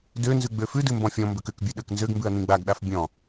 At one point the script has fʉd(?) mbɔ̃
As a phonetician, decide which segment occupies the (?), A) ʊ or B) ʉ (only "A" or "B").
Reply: B